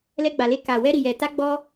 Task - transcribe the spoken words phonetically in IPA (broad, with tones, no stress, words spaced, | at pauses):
lɛ˧ɡ͡ba˨le˧ ka˨ wɛ˧ɾi˨jɛ˨ ta˧ɡ͡bɔ˧